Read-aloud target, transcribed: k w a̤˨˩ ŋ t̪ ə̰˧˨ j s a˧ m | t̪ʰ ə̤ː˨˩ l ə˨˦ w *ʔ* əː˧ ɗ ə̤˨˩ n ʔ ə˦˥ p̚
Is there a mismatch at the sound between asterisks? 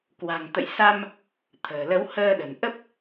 yes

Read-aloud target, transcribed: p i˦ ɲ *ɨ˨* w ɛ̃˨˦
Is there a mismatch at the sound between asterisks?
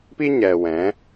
yes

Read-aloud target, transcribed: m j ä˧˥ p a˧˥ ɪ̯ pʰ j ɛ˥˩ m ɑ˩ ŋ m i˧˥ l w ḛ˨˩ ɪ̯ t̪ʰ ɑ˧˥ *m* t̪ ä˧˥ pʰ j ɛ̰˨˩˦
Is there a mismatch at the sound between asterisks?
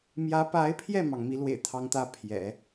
yes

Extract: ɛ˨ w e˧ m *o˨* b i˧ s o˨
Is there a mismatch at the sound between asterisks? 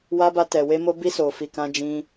yes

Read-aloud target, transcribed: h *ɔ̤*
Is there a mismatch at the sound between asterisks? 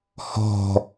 no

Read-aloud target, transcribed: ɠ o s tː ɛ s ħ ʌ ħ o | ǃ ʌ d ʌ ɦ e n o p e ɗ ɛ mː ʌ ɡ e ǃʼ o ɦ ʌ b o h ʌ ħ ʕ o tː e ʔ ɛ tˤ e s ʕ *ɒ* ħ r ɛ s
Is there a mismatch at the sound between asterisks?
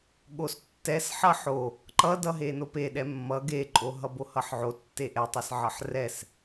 yes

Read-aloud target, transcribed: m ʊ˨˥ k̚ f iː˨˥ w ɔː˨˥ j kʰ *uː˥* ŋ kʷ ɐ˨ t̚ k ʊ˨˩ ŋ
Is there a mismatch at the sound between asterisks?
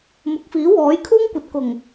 no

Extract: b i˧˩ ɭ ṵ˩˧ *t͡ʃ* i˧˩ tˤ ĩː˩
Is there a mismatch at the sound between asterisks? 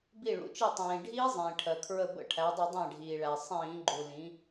no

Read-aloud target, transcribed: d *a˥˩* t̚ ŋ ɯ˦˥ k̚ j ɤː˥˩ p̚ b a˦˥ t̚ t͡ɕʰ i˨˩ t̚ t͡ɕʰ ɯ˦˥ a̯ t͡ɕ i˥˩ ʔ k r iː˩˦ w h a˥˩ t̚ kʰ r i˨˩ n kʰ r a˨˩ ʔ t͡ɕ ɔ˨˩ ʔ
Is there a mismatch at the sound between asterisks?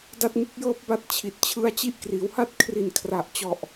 no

